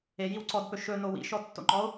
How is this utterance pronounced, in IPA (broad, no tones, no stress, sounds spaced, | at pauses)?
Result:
e j i w ǀ ɔ d p ɵ ʃ ɵ n o w ḭ ʃ ɔ tː o̰ ŋ͡ǃ ɔ o̯